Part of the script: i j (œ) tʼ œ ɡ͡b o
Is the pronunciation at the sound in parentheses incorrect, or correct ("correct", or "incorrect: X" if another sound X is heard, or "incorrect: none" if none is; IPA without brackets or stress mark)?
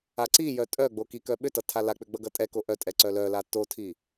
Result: correct